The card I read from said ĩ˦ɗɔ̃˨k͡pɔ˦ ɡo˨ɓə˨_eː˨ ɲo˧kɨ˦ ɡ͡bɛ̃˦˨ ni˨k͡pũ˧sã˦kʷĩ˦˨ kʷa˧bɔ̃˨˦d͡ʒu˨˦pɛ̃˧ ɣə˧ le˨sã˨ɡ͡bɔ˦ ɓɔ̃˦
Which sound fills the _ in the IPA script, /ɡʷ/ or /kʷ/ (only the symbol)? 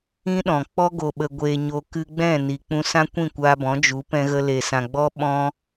ɡʷ